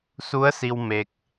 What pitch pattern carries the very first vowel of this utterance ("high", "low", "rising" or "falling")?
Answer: rising